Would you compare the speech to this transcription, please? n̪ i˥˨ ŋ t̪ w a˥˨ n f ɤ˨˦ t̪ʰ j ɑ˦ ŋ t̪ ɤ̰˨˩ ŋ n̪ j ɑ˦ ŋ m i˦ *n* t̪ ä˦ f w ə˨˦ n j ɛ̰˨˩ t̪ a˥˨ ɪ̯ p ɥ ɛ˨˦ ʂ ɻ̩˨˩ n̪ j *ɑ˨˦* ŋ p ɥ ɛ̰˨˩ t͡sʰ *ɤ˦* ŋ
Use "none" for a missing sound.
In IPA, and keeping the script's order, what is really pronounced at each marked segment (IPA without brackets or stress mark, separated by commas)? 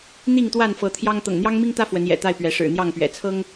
ŋ, ɑ˥˨, ɤ˦